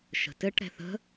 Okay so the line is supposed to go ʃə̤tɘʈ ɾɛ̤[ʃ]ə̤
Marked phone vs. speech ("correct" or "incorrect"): incorrect